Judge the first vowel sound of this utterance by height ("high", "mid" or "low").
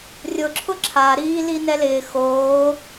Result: high